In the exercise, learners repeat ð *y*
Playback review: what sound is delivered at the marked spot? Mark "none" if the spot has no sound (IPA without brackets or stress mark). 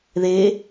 e